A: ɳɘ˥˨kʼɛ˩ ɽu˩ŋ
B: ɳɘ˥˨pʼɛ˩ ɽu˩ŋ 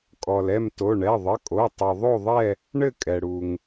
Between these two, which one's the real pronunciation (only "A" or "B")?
A